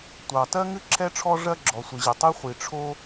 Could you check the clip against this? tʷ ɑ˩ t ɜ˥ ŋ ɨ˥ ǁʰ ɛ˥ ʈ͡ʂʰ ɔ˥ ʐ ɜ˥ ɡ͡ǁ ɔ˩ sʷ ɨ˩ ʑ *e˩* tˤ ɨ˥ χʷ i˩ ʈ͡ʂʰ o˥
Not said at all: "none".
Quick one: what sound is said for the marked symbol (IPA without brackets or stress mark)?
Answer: e˩